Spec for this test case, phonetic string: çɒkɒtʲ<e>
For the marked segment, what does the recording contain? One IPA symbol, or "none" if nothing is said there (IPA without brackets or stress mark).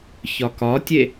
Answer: e